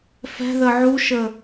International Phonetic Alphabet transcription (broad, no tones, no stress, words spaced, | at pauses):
fɛ̤ðə ʕuʃə